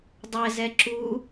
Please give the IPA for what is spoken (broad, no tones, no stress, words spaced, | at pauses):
dˤɛzɛ ǁu